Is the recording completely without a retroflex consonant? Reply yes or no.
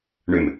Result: no